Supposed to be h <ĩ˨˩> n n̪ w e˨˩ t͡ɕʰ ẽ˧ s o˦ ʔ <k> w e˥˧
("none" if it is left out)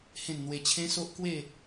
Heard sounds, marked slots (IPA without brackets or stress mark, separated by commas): ẽ˨˩, k